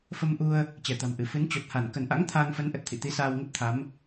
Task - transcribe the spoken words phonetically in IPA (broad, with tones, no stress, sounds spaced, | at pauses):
f ə˧ m ʔ u˧ ə̯ | t͡ɕ ɛ˧˩ t̪ a̤˨˩ m ʔ ɨ˧˩ f ɨ˨˦ n t͡ɕ o˨˩ t̚ h a˧˩ n k ə˧˩ n ʔ a̰˧˥ ŋ t̪ʰ aː˧ ŋ f ə˨˦ n ʔ ə˨˩ t̚ t̪ʰ ḭ˧˨ t̪ i˨˦ s aː˧ w ŋ ə˦˥ t̚ t̪ʰ a˨˦ m